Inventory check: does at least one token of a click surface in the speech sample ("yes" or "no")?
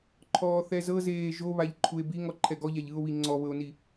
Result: yes